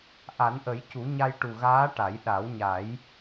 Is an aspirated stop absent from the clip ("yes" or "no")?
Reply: yes